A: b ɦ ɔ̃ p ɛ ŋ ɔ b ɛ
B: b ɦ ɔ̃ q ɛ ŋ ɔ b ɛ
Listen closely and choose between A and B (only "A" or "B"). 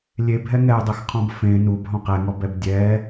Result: B